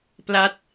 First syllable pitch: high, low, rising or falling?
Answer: falling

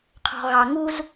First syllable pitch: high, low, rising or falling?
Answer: low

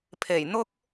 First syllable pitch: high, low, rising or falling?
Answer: low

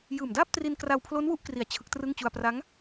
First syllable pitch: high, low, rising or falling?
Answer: low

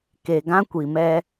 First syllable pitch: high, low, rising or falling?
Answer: low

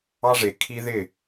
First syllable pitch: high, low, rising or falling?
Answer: high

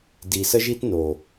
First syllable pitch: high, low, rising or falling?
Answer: low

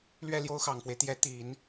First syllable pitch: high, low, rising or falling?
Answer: falling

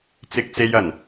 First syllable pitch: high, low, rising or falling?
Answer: high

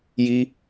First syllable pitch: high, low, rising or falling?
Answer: high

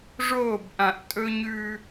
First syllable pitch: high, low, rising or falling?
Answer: falling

